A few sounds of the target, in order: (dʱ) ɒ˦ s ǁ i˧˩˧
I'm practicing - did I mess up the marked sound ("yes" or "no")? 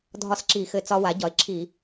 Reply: no